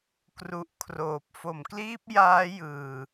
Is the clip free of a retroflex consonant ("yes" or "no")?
yes